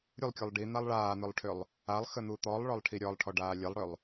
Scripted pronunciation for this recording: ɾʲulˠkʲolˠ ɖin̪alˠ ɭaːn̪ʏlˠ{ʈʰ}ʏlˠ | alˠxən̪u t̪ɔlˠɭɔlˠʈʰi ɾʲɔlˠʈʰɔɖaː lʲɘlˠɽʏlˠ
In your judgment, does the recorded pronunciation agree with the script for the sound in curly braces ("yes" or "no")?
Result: yes